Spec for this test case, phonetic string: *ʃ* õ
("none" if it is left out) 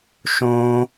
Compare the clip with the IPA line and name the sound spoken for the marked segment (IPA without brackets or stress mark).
ʃ